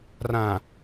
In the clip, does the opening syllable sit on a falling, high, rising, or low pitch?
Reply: low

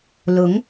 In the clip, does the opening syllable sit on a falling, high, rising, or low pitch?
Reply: rising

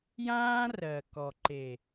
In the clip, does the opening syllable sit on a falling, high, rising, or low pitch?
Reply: high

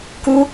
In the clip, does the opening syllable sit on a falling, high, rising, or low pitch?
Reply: high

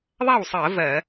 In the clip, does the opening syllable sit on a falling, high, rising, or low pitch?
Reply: falling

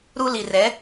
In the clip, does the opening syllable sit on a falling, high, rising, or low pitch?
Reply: high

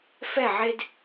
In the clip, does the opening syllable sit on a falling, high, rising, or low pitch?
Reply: falling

